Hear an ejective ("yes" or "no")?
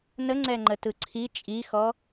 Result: yes